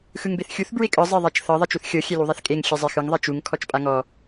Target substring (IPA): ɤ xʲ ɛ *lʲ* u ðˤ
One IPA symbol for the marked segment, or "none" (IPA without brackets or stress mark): l